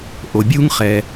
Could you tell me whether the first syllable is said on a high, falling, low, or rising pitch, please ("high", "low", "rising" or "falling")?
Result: low